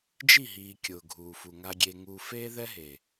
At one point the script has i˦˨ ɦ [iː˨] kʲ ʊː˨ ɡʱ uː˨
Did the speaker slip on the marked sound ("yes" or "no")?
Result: no